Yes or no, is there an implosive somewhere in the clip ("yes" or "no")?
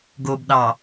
yes